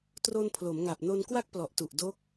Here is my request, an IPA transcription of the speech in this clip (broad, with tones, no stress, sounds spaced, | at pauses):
t r o˧ n pʰ l o˩˦ m ŋ a˨˩ p̚ n o˧ n k w a˥˩ k̚ p l ɔ˨˩ ʔ t u˨˩ ʔ d o˦˥ k̚